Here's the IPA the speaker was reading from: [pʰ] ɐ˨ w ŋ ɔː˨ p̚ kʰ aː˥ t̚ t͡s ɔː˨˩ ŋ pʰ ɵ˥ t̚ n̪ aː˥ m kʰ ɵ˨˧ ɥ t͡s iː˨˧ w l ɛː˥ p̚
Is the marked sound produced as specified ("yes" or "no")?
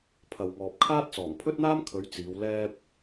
yes